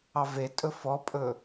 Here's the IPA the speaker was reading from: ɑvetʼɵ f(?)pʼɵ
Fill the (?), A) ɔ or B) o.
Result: A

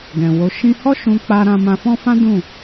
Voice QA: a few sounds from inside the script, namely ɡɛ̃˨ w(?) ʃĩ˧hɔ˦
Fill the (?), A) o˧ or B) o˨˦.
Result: B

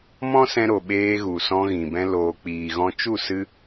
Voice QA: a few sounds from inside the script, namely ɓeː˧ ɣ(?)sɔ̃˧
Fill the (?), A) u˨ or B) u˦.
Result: A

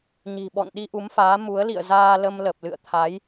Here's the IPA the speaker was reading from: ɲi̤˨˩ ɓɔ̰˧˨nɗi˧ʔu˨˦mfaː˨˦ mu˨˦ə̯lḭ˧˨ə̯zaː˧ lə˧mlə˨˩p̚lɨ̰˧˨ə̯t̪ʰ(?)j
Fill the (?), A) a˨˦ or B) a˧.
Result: A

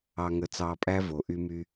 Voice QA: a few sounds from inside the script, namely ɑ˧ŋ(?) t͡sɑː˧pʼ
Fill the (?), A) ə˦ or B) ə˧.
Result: B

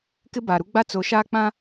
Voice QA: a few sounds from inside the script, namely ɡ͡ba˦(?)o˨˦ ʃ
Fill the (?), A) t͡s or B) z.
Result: A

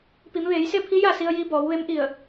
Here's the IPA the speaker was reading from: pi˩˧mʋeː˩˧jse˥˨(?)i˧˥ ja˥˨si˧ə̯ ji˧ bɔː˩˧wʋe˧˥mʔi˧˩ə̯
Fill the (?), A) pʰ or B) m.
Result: A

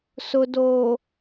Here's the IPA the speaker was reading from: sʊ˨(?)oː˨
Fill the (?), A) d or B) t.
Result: A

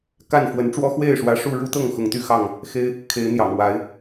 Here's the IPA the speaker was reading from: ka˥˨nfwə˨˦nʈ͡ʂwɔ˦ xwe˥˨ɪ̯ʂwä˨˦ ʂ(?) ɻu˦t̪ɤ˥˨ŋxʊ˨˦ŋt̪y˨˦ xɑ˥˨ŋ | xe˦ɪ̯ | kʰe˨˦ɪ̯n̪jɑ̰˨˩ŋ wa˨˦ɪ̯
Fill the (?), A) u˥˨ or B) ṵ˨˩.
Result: A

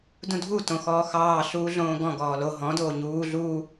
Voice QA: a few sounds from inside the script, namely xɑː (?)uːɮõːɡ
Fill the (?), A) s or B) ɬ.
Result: B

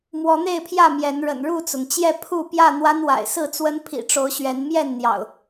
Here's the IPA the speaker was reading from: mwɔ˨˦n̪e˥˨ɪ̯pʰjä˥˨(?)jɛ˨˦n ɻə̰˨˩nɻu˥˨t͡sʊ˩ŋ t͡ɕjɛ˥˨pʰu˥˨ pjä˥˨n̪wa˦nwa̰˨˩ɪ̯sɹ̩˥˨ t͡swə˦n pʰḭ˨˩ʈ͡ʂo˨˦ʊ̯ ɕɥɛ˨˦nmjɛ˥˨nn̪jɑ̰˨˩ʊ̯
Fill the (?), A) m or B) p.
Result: A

